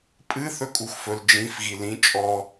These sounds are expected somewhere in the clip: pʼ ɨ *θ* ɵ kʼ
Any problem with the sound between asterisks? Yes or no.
no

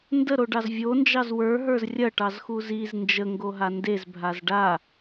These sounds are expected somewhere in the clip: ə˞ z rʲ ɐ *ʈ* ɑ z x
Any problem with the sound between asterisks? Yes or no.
no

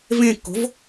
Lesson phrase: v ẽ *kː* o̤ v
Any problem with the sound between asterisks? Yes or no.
no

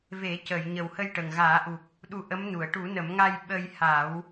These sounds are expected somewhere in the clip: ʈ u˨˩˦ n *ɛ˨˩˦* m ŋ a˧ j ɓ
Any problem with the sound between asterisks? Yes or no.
yes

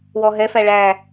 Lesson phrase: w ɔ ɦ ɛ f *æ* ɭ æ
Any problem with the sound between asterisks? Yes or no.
no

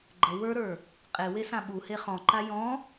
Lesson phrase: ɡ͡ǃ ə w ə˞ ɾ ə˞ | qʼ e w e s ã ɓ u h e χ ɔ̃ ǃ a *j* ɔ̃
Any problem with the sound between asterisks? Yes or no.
no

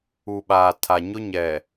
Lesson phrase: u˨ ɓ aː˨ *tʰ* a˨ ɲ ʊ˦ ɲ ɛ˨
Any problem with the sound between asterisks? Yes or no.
no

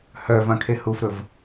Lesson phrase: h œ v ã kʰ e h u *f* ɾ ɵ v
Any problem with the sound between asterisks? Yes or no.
no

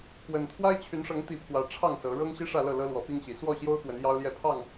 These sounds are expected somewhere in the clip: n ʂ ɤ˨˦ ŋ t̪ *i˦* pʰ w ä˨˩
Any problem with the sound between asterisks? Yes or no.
yes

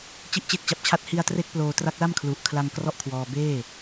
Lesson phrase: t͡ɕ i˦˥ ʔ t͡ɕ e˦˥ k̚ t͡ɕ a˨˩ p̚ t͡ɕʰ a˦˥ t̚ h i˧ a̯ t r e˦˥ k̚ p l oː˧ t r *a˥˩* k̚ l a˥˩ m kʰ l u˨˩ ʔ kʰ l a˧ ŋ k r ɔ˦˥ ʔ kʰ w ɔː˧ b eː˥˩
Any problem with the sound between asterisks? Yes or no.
yes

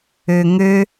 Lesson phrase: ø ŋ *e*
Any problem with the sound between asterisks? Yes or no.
yes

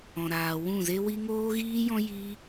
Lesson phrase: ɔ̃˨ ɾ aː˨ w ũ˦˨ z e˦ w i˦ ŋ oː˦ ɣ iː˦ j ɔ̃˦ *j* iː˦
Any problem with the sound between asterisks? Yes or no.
no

